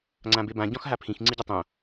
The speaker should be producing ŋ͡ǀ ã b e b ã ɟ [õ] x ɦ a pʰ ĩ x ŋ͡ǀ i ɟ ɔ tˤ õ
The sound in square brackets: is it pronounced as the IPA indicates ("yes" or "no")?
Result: no